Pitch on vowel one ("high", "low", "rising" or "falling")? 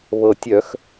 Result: low